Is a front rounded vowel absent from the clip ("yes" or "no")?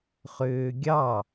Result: no